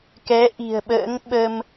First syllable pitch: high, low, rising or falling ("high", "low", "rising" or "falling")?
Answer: rising